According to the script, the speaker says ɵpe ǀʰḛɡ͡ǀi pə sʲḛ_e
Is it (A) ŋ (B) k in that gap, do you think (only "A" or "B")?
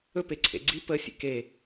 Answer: B